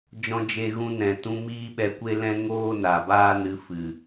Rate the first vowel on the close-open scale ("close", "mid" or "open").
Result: mid